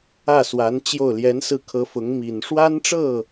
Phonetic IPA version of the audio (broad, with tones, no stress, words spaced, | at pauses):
ä˥˩swa˧˥nt͡ɕjo˥˩ʊ̯ ljɛ˧˥nsɹ̩˥˩kʰɤ˧˥fʊ˧˥ŋ mi˨˩nʂwa˥nʈ͡ʂɤ˥˩